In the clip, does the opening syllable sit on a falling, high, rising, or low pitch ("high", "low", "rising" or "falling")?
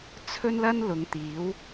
high